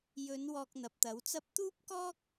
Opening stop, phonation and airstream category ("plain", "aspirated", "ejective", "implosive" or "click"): plain